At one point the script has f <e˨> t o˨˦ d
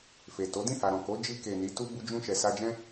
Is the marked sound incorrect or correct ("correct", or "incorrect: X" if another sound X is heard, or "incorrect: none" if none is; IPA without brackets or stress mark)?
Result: correct